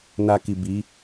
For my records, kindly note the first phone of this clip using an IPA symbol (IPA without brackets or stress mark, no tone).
n